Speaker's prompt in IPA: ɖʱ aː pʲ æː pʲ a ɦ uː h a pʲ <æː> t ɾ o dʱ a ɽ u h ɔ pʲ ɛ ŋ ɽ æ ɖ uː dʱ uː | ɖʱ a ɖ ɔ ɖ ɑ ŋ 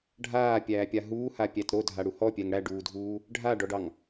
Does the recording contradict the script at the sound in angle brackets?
yes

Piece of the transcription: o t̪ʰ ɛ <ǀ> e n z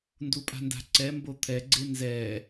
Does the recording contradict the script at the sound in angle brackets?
yes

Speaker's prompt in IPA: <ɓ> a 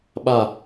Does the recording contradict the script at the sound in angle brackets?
no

